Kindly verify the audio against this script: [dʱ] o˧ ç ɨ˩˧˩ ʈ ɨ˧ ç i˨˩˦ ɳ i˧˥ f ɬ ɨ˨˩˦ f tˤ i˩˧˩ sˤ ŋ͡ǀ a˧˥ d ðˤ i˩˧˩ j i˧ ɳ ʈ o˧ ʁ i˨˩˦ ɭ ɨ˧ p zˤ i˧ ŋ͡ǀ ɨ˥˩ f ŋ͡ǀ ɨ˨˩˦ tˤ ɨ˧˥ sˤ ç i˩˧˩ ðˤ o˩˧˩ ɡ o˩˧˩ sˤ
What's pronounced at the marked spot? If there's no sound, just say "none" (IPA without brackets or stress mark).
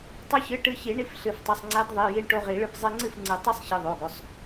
tˤ